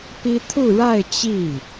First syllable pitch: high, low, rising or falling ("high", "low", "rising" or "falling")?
high